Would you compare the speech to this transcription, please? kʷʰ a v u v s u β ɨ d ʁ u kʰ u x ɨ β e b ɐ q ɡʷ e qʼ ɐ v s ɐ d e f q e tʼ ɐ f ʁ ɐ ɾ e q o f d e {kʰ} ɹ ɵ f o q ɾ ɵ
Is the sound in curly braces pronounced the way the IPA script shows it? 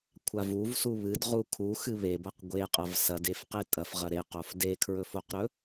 yes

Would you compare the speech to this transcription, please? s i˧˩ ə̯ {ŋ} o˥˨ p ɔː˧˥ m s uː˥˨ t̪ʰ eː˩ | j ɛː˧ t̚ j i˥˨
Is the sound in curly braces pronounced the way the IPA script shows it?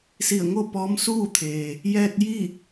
yes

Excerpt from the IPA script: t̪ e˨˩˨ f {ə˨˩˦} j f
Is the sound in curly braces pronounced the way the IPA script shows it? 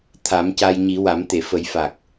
yes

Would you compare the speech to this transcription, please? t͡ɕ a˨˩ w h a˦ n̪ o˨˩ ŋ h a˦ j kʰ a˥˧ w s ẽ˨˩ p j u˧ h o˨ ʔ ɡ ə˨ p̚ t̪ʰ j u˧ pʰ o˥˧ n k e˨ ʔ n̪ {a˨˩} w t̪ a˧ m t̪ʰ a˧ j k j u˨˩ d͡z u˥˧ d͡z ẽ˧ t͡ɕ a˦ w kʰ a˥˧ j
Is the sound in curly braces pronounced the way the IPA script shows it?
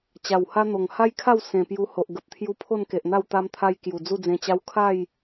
no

